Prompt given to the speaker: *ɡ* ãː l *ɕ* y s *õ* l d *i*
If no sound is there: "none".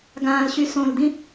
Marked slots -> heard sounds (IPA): ɡ, ɕ, õ, ĩ

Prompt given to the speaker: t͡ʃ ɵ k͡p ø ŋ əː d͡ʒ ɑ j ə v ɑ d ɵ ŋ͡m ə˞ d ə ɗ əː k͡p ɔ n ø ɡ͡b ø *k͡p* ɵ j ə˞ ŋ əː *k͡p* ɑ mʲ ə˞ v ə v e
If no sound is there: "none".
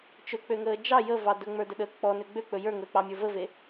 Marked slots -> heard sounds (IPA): k͡p, k͡p

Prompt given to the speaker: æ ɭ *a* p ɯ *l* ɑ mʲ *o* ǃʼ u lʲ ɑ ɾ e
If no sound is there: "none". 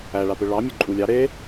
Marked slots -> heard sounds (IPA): a, ɭ, ɵ

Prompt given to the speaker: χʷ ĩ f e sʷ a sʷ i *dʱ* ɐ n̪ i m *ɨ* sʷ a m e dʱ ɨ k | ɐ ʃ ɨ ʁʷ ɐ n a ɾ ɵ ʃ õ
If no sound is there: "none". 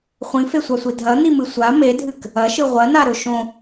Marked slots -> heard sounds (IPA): dʱ, ɨ

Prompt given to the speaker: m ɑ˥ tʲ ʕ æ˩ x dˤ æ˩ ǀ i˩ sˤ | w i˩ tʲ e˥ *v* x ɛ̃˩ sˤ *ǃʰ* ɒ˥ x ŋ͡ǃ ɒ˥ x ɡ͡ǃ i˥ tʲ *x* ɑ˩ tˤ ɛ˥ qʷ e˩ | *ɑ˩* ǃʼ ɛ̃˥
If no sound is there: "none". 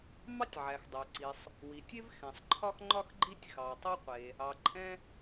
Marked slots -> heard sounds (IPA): v, ǃʰ, x, ɑ˩

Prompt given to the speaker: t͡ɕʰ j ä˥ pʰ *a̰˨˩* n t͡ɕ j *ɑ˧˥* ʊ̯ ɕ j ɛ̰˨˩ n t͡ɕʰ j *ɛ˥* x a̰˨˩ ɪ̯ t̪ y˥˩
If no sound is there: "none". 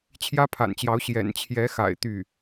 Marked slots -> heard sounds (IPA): a̰˨˩, ɑ˧˥, ɛ˧˥

